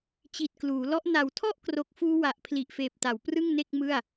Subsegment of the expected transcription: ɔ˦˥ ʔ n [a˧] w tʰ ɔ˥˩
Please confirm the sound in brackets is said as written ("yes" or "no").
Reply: no